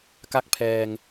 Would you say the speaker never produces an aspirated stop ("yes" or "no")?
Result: no